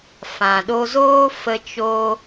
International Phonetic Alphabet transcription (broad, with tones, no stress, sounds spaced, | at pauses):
f ã˨ ɗ o˧ z oː˦ f ə˦ t͡ʃ o˦